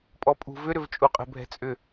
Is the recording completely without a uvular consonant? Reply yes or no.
no